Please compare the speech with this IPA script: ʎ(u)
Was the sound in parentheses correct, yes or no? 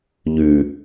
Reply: no